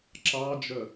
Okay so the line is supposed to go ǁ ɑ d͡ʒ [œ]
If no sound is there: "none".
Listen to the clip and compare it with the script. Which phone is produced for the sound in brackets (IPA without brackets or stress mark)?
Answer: œ